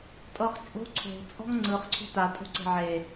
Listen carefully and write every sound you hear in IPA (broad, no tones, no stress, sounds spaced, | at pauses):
tʼ ɤ χ t͡ʃʼ o̤ ǀʰ o̤ t͡sʼ ɔ̤ ŋ ŋ͡ǀ ɯ χ ǀʰ o̤ t a tʼ o̤ ǀ e̤ ʕ e